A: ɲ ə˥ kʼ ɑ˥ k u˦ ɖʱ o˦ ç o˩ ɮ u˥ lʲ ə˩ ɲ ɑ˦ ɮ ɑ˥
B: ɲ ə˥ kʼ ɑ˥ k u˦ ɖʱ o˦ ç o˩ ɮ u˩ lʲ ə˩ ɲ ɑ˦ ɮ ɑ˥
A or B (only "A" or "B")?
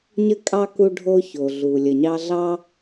B